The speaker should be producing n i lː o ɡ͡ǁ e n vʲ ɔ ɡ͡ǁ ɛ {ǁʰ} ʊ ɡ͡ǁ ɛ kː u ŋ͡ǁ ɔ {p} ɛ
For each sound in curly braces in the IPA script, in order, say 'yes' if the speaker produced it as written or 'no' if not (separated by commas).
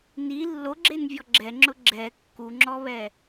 no, no